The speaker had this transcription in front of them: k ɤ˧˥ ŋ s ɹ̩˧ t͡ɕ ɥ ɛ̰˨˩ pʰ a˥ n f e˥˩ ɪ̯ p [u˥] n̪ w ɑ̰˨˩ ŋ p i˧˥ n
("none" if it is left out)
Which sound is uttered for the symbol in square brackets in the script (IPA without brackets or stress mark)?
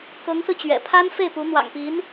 u˧˥